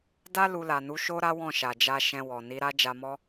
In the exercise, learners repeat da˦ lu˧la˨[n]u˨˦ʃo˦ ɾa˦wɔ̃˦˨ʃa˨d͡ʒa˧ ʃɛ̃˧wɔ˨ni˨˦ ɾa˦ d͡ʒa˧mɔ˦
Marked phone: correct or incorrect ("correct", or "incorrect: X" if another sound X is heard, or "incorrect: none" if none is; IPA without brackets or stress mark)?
correct